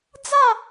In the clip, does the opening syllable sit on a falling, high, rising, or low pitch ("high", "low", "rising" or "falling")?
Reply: falling